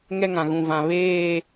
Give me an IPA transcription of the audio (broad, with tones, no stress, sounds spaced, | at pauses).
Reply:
ŋ ɛ˦ ŋ ã˨ ɣ ũ˨ v ã˨ β eː˦˨